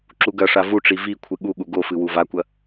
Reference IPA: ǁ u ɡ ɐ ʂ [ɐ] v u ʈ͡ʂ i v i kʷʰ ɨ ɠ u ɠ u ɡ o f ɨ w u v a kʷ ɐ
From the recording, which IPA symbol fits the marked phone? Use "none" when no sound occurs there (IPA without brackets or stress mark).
a